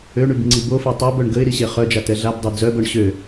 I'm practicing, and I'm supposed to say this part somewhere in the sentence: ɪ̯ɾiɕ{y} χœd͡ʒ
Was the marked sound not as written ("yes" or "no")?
yes